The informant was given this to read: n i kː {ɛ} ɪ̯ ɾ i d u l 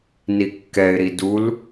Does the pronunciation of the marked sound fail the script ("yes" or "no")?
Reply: no